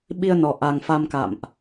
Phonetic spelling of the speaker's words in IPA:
ɓi˧ə̯nɔ˨˩ ʔa˨˩ŋfa˧mka̰˧˨mʔ

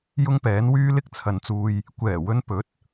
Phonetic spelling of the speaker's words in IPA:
jʊ˥ŋpɛː˨˥n wyː˥lɪ˥k̚t͡sʰɐ˨nt͡suː˧j | kʷɛː˨˩wɵ˧n pɵ˨˥t̚

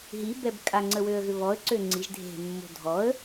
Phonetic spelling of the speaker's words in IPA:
ɦibɛb kʼaŋ͡ǀəwøə̯ɣʏ βɔə̯ǀø ŋ͡ǀiʒ dʱe̤mːo̤ dʱɔə̯

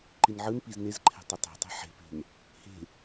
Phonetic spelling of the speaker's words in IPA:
ǃinʕɯnpiz nezǃʰɛ̤ tˤɘtˤe̤tˤe̤ ħe̤pe̤n | he̤

